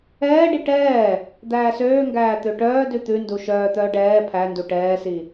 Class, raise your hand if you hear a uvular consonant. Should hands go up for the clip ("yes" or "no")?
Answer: no